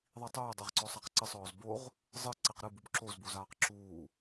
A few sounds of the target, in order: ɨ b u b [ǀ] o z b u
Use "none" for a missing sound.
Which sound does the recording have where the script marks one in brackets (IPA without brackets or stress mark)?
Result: ǁ